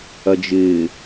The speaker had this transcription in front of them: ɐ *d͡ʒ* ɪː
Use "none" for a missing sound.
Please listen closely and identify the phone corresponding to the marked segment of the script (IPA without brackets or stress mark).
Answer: d͡ʒ